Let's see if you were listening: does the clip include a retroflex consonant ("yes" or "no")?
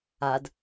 no